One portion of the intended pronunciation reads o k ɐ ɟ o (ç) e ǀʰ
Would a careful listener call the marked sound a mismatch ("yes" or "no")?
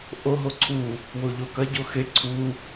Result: yes